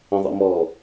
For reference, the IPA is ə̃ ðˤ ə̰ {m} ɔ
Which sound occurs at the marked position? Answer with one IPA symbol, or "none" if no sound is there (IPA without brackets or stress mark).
m